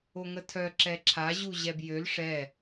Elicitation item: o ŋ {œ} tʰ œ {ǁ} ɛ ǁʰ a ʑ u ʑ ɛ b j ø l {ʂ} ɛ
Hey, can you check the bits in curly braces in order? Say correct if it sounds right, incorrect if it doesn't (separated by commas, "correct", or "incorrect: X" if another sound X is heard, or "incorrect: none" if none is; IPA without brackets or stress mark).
incorrect: ə, correct, correct